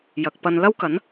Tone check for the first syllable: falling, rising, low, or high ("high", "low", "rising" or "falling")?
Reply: low